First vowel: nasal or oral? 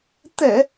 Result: oral